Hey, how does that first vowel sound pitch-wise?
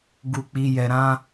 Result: low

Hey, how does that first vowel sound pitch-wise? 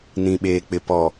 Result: low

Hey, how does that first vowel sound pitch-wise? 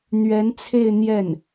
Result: rising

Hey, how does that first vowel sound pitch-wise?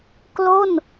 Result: falling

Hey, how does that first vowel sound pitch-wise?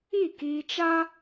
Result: falling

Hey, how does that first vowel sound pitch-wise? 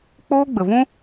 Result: high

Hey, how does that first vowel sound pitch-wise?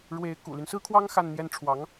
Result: rising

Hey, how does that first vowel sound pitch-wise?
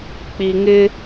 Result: low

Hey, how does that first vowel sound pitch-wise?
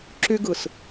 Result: high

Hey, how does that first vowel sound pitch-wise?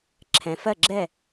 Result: low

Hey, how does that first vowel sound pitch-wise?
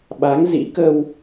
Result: rising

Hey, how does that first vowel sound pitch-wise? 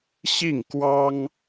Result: falling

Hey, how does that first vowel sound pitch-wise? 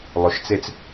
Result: rising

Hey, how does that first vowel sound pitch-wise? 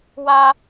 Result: high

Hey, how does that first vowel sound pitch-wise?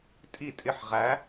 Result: falling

